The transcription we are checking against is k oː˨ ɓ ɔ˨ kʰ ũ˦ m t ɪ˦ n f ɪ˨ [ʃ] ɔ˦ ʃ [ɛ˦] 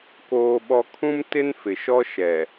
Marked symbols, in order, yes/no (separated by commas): yes, no